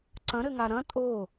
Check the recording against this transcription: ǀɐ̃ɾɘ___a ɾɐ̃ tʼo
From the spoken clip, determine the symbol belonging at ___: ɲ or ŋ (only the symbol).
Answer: ŋ